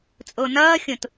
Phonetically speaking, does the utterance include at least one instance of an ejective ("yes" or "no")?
yes